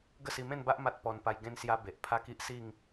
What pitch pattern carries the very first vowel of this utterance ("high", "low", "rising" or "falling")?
falling